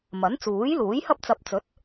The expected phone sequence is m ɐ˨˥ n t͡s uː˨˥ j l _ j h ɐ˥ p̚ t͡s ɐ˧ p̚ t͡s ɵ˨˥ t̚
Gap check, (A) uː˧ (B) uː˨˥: B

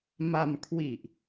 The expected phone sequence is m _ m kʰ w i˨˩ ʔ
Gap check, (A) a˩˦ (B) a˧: B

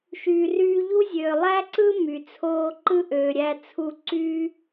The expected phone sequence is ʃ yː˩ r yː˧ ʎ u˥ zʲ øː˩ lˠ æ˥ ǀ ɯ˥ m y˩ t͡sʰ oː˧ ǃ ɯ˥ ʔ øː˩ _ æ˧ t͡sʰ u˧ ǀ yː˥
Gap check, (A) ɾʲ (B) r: A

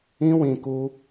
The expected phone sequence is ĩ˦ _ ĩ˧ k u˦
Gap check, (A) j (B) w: B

